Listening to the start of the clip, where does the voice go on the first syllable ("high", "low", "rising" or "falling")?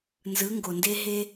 rising